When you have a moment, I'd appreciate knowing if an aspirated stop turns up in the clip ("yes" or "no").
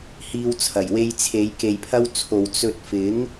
yes